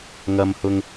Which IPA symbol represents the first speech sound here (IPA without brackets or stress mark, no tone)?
ŋ